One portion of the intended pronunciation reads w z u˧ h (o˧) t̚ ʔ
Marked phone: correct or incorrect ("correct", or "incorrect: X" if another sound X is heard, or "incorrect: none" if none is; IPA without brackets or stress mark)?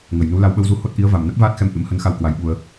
incorrect: o˦˥